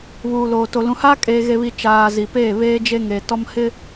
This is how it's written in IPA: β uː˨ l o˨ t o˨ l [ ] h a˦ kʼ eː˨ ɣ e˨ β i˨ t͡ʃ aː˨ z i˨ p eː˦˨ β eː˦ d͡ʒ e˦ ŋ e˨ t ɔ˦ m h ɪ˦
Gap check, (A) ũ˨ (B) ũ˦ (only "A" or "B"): A